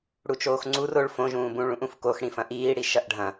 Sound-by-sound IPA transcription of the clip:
ɽut͡ʃoːxŋ͡ǀur oɭ fõʒũːbũ ɭũʔũfkox ɽĩfɐ̃ʔiː ɽiʃɐʔɖʱɐ̃

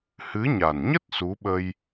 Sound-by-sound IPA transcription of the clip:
hɨ˨˦ɲa˨˩nɲə˦˥t̚ su˨˦ɓə˧j

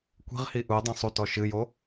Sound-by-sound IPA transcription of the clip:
kʷi̤ʁhi ʔudˤɛ̃ sˤutɔ ʃɨjo

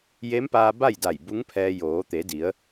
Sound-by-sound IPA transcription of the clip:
je˧˥mpaː˧ ba˥˨jda˧˩j bu˧˥ŋpʰɛː˧ joː˩˧t̪e˩˧di˩˧ə̯

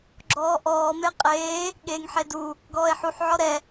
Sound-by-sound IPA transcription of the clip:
ɡ͡ǁɔːʔɔː meqʼeː | ɠeːŋħedu | ɡɔːe̯ħuħ ʕɔɾɛ

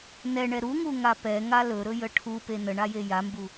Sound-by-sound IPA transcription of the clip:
nɛɳɛ ɾuŋuŋa pɛŋa lɵɾɵjə ʈʰupe nəɳaje jambu

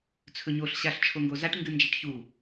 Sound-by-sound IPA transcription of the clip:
t͡sʰɵɲoɬ ɕaɬt͡ʃʰoŋɡozaʈ ŋɡɨnd͡ʒaʈçu

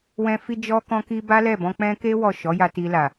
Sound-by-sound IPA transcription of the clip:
wɛ̃˧ fi˧d͡ʒɔ˧kɔ̃˧ki˧ ba˦lɛ˦˨bɔ̃˧k͡pɛ̃˦ ke˦ wɔ˦˨ ʃɔ˨˦ja˧ ti˧la˨

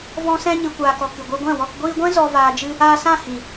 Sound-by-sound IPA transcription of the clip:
vɔ̃˧sɛ̃˧ ɲɨ˨kʷaː˨kɔ˨ kɨ˨ɡʷɛ˧ɡʷɛ̃˦˨wɔ˧k ɡʷiː˧ɡʷɛ̃˦ zɔ˧ vaː˧d͡ʒɨ˦ | aː˧sã˦˨ hĩ˨

